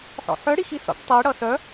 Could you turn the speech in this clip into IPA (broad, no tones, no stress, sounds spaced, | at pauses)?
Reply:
ħ ɔ̰ ħ œ ɽ i x i s ɔ̰ ʈ tˤ i ɽ ʌ s œ